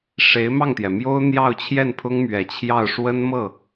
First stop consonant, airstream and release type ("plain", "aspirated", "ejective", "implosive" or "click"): plain